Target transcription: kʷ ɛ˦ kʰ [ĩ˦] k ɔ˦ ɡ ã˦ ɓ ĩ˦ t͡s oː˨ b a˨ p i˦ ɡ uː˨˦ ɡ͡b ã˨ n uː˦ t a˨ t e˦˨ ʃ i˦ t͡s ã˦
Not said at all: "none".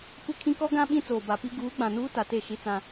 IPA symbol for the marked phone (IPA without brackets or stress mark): ĩ˦